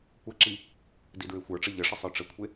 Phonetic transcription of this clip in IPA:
kʷəǁi | didɹexʷə˞ʈ͡ʂə ʎəʂə sˤə˞ʈ͡ʂəkʷʰe

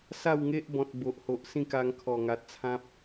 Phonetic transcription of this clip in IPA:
sa˥˧wŋe˦ʔbɔ̃˨t̚ bo˨ʔho˨ʔ sĩ˥˧ka˧ŋ kʰɔ˨˩ŋa˨t̚t͡sʰã˦p̚

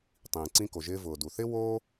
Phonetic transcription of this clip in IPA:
tˤĩː˩ǀĩ˧ko˩ʒɪː˧ vʊː˩du˩θɪ˥ woː˥

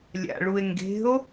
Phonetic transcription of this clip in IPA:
lʲa̰ɭue̯ŋɡe̤o̯

